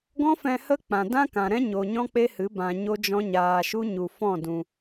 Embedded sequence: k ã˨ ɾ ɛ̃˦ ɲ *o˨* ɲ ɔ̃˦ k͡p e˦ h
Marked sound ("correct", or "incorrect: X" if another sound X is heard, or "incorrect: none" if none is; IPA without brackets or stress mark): correct